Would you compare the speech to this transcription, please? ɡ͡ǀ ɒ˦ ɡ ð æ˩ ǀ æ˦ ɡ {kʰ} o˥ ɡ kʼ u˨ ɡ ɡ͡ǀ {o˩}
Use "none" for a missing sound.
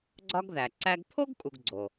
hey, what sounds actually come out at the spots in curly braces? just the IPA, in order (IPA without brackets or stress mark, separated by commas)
pʰ, o˩